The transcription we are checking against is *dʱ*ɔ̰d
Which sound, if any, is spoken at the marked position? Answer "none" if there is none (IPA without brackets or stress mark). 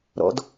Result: ɾ